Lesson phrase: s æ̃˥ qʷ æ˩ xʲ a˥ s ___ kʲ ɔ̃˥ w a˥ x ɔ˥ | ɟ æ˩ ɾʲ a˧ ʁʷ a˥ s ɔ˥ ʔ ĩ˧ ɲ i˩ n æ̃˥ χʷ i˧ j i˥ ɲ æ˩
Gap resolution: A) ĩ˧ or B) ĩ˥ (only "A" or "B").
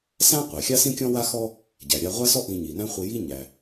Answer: B